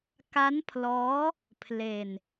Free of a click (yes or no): yes